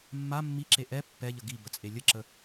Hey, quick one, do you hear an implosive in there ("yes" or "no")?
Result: no